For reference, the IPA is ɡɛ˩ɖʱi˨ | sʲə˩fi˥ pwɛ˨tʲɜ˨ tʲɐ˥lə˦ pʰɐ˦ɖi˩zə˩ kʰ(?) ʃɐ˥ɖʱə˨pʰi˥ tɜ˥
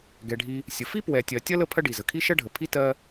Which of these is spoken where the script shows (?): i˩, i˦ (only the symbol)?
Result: i˦